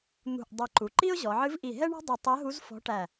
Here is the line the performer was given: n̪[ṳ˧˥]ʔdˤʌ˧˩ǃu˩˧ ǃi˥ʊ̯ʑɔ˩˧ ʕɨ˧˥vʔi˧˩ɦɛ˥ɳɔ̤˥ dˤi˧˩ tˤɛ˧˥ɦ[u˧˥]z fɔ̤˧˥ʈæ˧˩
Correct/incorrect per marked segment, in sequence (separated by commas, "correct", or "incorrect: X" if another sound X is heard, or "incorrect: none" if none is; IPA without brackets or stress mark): incorrect: ṳ˧˩, correct